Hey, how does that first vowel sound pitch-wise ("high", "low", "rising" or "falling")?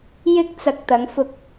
high